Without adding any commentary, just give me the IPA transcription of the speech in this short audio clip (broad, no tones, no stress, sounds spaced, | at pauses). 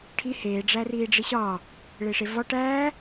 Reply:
ʈʰ i h eː ɖ͡ʐ æ r iː ɖ͡ʐ i ɕ ɒː | ɭ e ʂ e v ɒ ʈ æː